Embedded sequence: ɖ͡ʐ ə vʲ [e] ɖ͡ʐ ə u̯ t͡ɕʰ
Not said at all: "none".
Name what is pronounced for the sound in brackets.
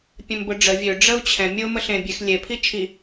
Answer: ø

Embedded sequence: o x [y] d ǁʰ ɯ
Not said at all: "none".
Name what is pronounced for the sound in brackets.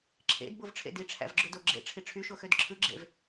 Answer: ø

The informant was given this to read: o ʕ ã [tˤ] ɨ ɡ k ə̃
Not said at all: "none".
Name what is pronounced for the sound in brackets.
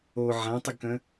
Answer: tˤ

